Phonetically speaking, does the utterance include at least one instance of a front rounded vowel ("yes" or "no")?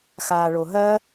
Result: no